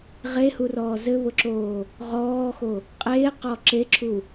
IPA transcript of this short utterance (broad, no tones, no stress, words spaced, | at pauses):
ʁehurɔː zɘβʊǁoː | ʁɔːxo | qʼeːqɔ ǁeǁʰu